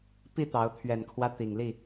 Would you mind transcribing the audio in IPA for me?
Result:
p i˥˨ t̪ ɑ˨˦ ʊ̯ t̪ʰ ɥ ɛ˨˩ n kʰ w ä˦ t̪ i˨˩ ŋ l i˥˨

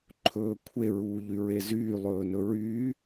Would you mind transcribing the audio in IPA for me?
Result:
ǃʰ ɵː kʷʰ e ɹ uː ʎ y ɹ e z yː lˠ ɵː n ɵ ɹ yː

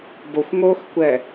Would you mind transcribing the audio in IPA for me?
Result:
b o xʷ ŋ oː x kʷ ɛ

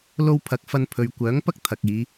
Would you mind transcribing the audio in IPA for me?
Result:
l o˧ w pʰ ɐ˨˥ k̚ f ɐ˧ n pʰ ɵ˨ ɥ kʷ œː˨˥ ŋ p ɐ˥ k̚ t̪ʰ ɐ˨ k̚ iː˨˧

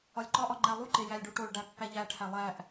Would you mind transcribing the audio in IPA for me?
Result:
ɒ lʲ ǃ ɒ ʔ ɒ ŋ͡ǃ æ lˠ u ǃ e j æ lʲ ɖ u ʈ o ɭ ɖ æ pː æ ʎ æ ʈʰ æ lˠ æ ʔ

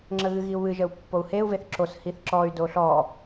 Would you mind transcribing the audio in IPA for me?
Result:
ŋ͡ǁ ə ɣ ɨ ɣ i u̯ β ɨ ʒ ə u̯ pː o u̯ h e u̯ v e θ ǁ o s h i θ ǁ ɔ y̯ d o ɬ ɔ

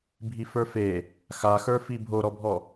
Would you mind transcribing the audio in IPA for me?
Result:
bʱ i f ə˞ f e | x a x ə˞ f i bʱ o ɾ ɔ bʱ ɔ

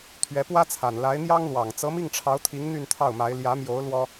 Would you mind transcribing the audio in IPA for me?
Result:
t̪ʰ ɥ ɛ˧˥ p w ä˥ t͡sʰ a˨˩ n l a˧˥ ɪ̯ n̪ j ɑ˥ ŋ l w ɑ˨˩ ŋ t͡s ɤ˧˥ m i˥˩ ŋ ʈ͡ʂʰ ɑ˧˥ ʊ̯ t̪ʰ i˧˥ ŋ n̪ y˥˧ n t̪ʰ ɑ˥˩ ʊ̯ m a˧˥ ɪ̯ l j ä˧˥ m j o˧˥ ʊ̯ l w ɔ˥

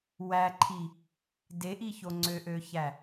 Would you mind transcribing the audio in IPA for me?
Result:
w æ ǃʰ i | d e ʔ i ç o ŋ͡ǀ ø ʔ ø ç æ

